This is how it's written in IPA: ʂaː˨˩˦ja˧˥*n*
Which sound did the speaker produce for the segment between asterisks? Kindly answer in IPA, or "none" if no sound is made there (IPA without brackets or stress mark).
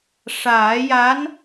n